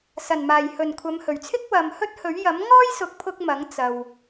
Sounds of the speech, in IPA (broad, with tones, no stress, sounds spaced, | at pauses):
s ɐ˨˩ n m aː˨˩ j h ɵ˨˩ n kʷʰ ɐ˨˧ m h ɵ˨˩ ɥ t͡sʰ ɪ˥ k̚ w ɐ˨ m h ɵ˥ t̚ h ɵ˨˥ ɥ j ɐ˨˥ m ŋ ɔː˥ j s ʊ˨˥ k̚ pʰ ʊ˧ k̚ m ɐ˨˥ ŋ t͡s ɐ˨ w